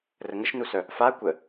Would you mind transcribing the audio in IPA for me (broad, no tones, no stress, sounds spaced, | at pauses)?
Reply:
r ə ŋ ə ʃ n u s œ | f a kʷ ə